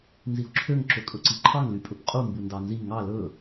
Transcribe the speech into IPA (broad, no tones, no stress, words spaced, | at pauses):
nzio̯ǁʰøŋ ǁɵkʼɵǀiǃʰɑŋ lypʼɵpqʼu mbundɑnzi ŋɑ lɵ